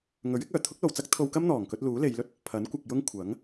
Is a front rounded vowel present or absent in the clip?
present